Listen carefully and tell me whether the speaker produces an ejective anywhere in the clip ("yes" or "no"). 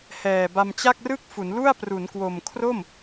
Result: no